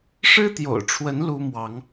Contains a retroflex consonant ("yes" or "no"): yes